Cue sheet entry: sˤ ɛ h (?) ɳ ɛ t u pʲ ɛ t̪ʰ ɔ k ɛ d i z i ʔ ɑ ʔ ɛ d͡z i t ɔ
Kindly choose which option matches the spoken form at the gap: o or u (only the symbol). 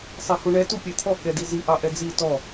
u